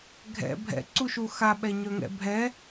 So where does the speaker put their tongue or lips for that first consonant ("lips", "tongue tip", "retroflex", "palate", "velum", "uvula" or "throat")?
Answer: velum